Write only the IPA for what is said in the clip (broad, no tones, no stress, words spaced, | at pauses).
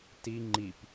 ti ŋ͡ǃip